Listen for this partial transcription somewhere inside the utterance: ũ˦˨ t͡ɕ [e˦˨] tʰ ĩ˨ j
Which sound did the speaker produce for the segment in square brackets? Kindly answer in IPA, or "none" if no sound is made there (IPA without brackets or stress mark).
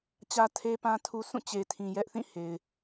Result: e˨